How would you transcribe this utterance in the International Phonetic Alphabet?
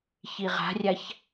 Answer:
ç i ʁ a̤ rʲ a ç

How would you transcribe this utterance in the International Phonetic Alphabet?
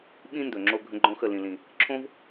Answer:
ɓ ĩ˦ n d ɵ˨ ŋ͡ǁ o˧ ɡʱ ə̃˦ ɡ͡ǃ õ˦ x ə˦˨ l ĩ˨ l ĩ˨ | ǁʰ õ˦ v

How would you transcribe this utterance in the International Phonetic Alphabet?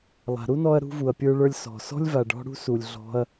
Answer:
lˠ a̤˨ ɾ u˦ n ɔ˧ ɐ̯ ɾ ṳ˧ v u˨ ɐ̯ pʲ ə˞˧ ɭ ə˞˧ lʲ s ɔ̤˨ s ɔ̤˦ lʲ v a˨ ɖ ɔ̤˧ ɽ ṳ˦ s u˨ lʲ ɮ ɔ̤˧ ɐ̯

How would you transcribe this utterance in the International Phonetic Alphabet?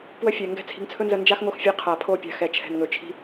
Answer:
p w ə˧ fʲ ɛ˨ ŋ ɡ ɛ̤˦ t͡sʰ i̤˧ ŋ t͡sʰ ɵ˦ n z ə˧ n d͡ʒ a˦ x ŋ o˧ x fʲ ɛ˨˦ qʰ a˨ pʰ o˦˨ pʲ a̤˨ x ɛ˨ t͡ʃʰ ɛ̤˨ n ŋ ɵ˨ t͡ʃʰ i̤˧

